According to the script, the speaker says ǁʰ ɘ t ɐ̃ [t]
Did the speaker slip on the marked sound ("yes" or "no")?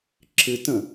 yes